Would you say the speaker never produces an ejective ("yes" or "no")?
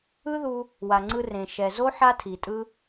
no